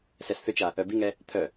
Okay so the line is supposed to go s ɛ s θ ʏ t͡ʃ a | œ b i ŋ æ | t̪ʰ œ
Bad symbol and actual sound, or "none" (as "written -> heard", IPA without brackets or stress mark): æ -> ɛ